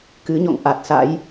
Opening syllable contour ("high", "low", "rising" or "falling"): rising